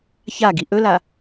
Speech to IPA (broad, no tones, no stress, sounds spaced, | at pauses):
ç a ɡ i ʔ ɵ l a